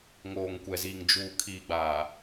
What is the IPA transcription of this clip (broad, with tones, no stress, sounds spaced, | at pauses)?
ŋ oː˨ ŋ kʷ ɛ˨ z iː˨ ŋ d͡ʒ uː˨ kʰ iː˨ ɡ͡b aː˨